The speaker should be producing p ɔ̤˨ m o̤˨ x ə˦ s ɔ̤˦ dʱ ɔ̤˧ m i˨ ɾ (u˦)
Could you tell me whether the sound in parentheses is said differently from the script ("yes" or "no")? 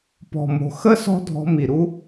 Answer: no